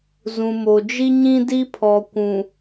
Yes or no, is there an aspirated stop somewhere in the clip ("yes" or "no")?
yes